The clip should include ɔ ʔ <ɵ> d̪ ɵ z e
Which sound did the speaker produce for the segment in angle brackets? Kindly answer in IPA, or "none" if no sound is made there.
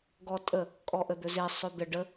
ə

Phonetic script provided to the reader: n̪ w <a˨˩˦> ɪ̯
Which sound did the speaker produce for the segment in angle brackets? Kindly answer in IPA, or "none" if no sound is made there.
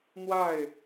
a˥˩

